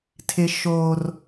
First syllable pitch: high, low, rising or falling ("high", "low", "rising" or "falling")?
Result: high